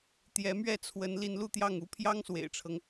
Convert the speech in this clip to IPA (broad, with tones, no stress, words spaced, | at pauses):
t̪jɛ˧˥mɥɛ˥˩t͡sʰwə˧˥n li˧˥nlu˥˧t̪jɑ˥˩ŋu˧˥ pʰjɑ˥ŋswḛ˨˩ɪ̯ʈ͡ʂʰɤ˦ŋ